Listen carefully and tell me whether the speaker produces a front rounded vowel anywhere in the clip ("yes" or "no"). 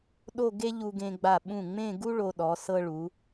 no